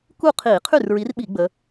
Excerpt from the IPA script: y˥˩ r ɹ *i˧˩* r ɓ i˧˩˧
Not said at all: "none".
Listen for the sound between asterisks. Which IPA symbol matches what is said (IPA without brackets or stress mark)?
i˨˦